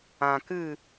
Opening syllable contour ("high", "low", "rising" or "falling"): low